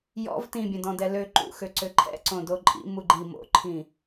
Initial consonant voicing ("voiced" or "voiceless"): voiced